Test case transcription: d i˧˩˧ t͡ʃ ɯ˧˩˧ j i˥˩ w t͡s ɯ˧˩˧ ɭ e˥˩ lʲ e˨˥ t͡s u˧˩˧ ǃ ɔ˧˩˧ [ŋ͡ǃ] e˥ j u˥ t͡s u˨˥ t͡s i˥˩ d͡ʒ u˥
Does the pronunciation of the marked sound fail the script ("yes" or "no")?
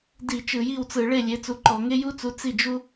yes